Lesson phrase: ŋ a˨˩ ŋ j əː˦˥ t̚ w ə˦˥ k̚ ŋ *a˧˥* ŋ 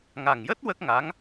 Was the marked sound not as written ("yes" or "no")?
no